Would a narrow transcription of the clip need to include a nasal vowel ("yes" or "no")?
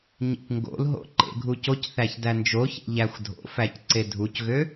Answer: no